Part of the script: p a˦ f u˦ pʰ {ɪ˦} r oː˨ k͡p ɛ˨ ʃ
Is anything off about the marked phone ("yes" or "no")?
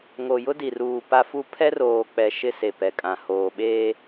yes